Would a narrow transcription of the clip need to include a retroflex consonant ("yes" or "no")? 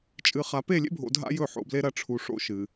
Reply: yes